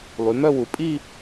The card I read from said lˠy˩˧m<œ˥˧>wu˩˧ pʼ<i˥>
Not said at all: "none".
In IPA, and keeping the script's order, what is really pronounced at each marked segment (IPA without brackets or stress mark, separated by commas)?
œ˥˧, i˥˧